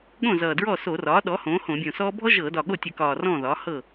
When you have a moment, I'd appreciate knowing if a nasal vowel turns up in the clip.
yes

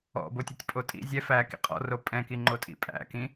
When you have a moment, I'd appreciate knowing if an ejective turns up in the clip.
yes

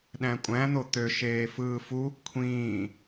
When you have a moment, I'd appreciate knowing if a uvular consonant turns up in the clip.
no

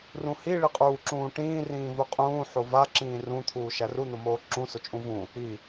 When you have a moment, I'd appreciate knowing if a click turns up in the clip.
yes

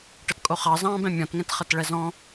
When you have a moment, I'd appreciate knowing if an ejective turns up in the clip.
yes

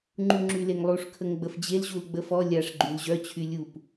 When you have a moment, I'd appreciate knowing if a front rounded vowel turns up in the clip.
yes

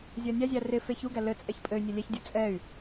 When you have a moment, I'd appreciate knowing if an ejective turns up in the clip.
yes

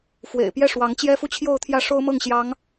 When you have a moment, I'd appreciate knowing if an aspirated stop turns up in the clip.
yes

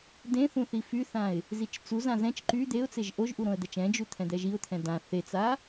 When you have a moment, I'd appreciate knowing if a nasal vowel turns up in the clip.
yes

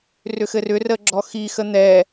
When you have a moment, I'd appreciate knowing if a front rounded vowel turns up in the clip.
yes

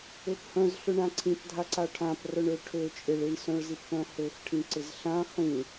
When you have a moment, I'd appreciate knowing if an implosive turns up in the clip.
no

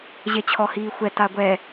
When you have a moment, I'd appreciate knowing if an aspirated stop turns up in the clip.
yes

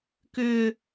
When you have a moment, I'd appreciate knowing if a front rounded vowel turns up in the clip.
yes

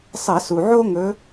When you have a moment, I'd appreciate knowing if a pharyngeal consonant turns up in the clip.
yes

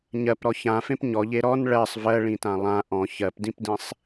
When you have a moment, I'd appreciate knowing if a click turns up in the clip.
no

